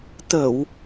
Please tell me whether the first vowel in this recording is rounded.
no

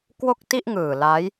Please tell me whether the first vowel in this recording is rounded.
yes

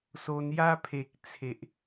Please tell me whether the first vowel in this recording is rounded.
yes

